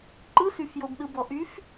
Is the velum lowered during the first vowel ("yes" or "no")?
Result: no